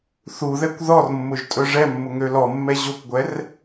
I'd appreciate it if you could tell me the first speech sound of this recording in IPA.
θ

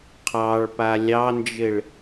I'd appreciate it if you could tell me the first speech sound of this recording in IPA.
qʰ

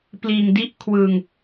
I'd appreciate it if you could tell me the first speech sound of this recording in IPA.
p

